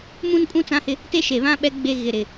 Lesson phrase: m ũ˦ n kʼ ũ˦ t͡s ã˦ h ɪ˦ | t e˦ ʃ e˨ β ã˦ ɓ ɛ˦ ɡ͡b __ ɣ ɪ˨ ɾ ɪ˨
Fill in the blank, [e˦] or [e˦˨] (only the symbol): e˦